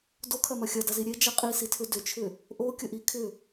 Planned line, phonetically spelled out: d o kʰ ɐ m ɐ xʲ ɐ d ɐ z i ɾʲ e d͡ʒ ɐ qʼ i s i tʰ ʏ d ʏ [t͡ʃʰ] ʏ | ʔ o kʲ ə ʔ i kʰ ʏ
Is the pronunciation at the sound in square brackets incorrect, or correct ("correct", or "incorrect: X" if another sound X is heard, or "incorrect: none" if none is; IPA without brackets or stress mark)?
correct